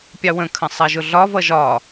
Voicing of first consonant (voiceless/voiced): voiceless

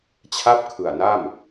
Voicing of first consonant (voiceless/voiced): voiceless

